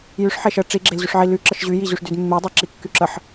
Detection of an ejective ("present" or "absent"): absent